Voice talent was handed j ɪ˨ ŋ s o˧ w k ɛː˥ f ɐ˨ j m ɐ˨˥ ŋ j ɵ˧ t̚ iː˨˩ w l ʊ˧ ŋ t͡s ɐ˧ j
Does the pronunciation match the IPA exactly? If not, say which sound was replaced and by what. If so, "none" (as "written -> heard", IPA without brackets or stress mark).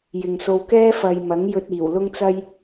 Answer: none